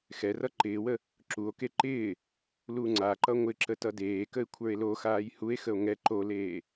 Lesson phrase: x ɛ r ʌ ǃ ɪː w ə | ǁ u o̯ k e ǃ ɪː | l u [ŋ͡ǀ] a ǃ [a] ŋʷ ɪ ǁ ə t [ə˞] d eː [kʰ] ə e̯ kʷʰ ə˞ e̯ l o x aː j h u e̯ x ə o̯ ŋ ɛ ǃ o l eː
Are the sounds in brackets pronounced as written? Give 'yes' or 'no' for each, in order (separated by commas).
yes, no, no, no